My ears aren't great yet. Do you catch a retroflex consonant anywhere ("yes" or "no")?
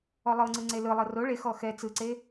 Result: yes